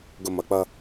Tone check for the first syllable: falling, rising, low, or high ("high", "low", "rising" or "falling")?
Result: low